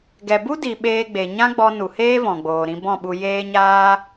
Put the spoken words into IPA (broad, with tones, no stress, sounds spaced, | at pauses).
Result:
ɡ ɛ˨ b u˦ d i˨ ɓ eː˧ ɡ͡b e˨ ɲ ã˦ ɡ͡b ɔ˧ n u˨ h eː˦ v ɔ̃˨ ɡ͡b oː˨ ɾ ĩ˧ b ɔ̃˦˨ ɓ u˧ j eː˦ ɲ aː˦